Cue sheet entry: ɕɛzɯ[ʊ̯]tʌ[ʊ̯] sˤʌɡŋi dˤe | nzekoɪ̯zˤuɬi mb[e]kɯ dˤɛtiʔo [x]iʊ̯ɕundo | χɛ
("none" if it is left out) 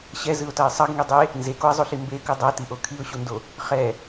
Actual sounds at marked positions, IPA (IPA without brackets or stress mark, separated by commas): ʊ̯, ɪ̯, e, kʰ